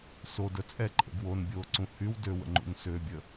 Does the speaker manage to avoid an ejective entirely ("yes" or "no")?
no